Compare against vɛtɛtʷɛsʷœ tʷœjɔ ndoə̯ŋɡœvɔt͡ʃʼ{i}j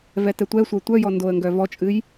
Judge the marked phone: incorrect: ɨ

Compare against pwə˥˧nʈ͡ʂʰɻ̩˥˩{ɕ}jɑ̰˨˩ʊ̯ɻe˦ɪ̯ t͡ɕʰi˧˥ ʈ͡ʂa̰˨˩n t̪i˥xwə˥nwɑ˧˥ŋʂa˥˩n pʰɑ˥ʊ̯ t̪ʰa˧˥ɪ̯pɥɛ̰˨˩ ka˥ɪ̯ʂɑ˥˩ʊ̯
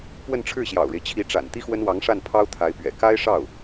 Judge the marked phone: correct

